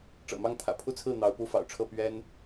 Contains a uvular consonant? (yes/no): no